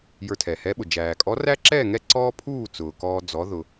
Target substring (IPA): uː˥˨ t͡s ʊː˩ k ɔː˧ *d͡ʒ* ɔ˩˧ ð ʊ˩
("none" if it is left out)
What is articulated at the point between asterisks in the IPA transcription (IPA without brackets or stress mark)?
d͡z